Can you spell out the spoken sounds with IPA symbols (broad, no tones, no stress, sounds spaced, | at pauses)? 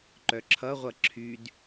ǃ œ ǁʰ ʌ ʁʷ ʌ ǁʰ y d